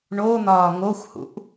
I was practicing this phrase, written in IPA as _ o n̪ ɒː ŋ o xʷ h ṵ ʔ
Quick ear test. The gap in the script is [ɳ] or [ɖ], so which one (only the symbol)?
ɳ